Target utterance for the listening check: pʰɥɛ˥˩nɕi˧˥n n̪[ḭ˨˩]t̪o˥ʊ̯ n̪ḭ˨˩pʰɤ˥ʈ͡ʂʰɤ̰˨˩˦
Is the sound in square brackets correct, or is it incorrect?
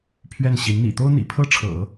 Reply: correct